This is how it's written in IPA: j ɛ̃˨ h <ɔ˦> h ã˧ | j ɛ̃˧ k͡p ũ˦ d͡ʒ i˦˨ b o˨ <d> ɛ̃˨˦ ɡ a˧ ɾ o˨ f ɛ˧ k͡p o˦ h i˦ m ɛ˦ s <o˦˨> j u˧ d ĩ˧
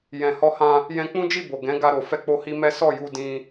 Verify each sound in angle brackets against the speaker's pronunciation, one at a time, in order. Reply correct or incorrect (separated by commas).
incorrect, incorrect, incorrect